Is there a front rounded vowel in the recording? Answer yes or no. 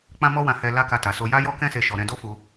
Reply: no